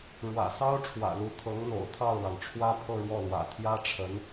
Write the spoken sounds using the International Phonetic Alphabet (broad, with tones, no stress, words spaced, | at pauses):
ɻwä̰˨˩sɑ˥ʊ̯ ʈ͡ʂʰwä̰˨˩lu˧˥ t̪ʰɤ˧˥ŋn̪o̰˨˩ʊ̯t̪ʰɑ˥˩ʊ̯lɑ˩ŋ ʈ͡ʂʰwä˥pʰɤ˥˧ɻwɔ˥˩lwä̰˨˩ t̪ʰjä˥ʈ͡ʂʰə˧˥n